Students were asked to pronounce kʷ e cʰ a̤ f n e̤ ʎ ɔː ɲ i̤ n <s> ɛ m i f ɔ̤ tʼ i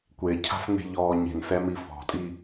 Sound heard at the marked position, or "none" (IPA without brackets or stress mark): s